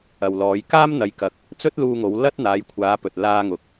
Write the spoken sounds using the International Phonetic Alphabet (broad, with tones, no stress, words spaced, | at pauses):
ɐ˨wlɔː˨˧j kaː˥mn̪ɐ˨˧jkɐ˨k̚ | t͡sɵ˥t̚luː˧ŋo˨˧w lɐ˥t̚n̪aː˨˧jkʷʰaː˨˧pɵ˨t̚ laː˧ŋʊ˨k̚